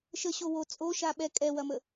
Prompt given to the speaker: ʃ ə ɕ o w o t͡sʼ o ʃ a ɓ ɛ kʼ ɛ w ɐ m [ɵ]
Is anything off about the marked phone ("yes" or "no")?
yes